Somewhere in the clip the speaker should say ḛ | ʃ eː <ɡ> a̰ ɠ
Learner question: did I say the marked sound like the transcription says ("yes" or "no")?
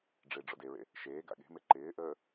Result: yes